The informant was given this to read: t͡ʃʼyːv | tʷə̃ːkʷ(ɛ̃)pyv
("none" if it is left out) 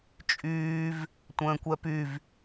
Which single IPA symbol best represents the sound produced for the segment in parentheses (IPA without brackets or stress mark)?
ɛ